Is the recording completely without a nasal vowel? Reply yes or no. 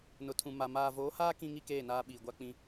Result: no